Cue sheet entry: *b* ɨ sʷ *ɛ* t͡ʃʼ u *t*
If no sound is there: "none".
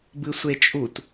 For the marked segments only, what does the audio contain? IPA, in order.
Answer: b, e, t

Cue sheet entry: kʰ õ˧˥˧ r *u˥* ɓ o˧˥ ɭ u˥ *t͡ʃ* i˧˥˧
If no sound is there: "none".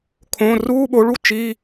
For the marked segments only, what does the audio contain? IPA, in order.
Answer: uː˥, t͡ʃ

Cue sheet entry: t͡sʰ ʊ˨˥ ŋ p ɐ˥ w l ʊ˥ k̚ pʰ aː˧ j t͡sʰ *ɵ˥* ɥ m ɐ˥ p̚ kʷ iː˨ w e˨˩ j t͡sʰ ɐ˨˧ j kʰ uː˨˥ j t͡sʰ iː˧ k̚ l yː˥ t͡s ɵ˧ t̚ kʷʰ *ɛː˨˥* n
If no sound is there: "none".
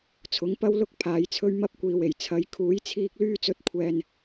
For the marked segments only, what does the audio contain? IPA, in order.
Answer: ɵ˥, ɛː˧

